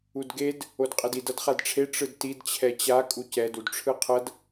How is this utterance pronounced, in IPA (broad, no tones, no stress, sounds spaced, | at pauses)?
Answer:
u d ɡ e d | o d qʼ ɛ d i d ʌ d χ a d ʈ͡ʂʰ e ʈ͡ʂ ɯ d t i d t͡ɕʰ ɛ t͡ɕ a kʼ u c ɛ d u d ʈ͡ʂʰ ɯ qʰ ʌ d